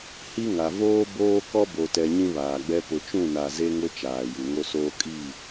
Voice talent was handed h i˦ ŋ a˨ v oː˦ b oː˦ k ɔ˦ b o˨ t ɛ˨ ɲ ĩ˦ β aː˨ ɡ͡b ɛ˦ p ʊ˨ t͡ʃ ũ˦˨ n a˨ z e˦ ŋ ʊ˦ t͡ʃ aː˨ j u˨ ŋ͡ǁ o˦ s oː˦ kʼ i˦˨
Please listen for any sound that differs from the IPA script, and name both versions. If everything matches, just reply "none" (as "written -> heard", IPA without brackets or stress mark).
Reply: ŋ͡ǁ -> ŋ